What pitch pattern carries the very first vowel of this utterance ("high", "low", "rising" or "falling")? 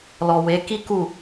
low